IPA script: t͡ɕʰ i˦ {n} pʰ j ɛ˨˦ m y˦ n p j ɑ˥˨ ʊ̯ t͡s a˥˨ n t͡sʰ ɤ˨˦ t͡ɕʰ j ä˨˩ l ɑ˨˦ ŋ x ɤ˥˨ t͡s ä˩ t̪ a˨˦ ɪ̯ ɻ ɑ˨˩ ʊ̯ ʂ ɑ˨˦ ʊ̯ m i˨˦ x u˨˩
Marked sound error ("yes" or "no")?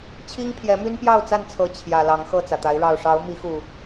yes